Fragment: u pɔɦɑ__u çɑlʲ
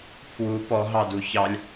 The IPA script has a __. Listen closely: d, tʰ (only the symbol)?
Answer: d